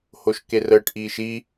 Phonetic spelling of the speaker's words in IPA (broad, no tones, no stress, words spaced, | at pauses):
hoʃkerəːʈ ʔiːʃi